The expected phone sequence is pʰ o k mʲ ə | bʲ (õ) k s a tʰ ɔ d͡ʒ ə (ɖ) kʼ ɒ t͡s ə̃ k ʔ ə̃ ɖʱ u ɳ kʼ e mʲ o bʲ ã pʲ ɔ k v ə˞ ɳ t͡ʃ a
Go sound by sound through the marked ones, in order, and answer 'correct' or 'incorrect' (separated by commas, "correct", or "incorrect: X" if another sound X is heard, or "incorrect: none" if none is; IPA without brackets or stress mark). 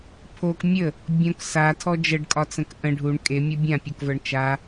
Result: correct, correct